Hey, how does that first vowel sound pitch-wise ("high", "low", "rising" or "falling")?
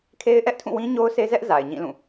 high